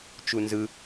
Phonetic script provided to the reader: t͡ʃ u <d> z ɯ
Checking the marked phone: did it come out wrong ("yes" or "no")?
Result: yes